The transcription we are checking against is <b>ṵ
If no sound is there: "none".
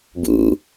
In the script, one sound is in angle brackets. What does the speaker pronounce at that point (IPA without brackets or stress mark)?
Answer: b